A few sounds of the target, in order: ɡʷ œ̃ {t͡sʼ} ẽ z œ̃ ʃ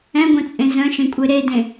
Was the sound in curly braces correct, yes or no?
yes